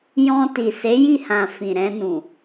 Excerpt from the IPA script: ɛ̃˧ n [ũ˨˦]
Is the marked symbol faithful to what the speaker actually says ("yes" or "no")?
no